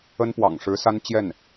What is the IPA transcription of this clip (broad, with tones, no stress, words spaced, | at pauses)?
ə˥npwɑ̰˨˩ŋʂɻ̩˧˥sa˥n t͡ɕjɛ˥˩n